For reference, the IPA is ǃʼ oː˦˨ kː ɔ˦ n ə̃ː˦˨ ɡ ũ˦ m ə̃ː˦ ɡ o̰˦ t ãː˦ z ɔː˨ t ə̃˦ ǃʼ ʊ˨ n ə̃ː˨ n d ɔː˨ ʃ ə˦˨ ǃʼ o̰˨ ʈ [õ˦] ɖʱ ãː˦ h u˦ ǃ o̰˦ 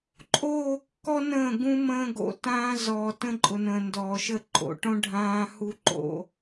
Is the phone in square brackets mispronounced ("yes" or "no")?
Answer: no